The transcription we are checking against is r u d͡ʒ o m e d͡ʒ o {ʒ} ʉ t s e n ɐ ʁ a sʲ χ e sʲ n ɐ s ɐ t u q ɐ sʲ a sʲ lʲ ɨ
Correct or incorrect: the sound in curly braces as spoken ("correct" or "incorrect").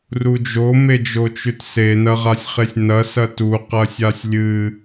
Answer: incorrect